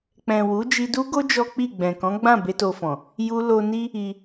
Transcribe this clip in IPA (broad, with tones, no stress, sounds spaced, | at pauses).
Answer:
k͡p ɛ̃˨ w u˨˦ d͡ʒ i˧ d u˦ ɡ o˦ d͡ʒ ɔ˦ k͡p i˦˨ ɡ͡b ɛ̃˨ k ɔ̃˨˦ ɡ͡b ã˦˨ b e˧ t o˧ f ɔ̃˨ | j u˧ l o˧ n i˦ | i˧